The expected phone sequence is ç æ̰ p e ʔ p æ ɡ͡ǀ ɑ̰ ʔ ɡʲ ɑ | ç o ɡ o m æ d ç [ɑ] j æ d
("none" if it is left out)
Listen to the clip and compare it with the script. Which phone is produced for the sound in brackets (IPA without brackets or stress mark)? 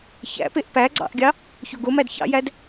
ɑ̰